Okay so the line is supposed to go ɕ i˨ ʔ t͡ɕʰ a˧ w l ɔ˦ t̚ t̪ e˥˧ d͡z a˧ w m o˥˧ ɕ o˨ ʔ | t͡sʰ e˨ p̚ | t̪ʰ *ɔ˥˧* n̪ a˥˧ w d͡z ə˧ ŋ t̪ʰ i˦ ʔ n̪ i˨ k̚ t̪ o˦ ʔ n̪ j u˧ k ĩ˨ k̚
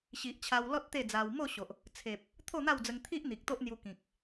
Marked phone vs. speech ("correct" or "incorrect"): incorrect